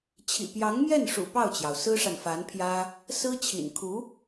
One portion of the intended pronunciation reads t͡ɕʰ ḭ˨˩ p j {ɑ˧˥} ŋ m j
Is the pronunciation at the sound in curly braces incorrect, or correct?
correct